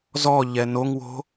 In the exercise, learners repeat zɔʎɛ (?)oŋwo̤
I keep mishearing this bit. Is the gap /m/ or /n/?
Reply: n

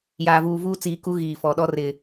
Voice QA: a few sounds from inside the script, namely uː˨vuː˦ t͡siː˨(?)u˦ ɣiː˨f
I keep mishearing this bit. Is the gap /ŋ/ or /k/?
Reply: k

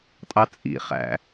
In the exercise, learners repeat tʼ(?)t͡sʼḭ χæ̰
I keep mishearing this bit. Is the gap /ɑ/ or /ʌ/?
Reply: ɑ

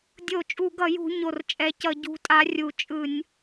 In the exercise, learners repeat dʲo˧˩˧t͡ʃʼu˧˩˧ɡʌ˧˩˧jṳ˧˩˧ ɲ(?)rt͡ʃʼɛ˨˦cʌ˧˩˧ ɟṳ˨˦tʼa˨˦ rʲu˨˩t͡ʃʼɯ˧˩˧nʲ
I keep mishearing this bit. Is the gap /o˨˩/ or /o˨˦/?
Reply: o˨˩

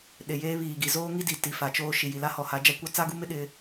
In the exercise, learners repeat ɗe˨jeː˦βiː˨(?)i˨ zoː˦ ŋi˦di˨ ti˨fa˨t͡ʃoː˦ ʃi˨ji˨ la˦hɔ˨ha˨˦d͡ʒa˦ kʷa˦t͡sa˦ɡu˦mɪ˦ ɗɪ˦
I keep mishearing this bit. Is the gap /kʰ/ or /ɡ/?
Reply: ɡ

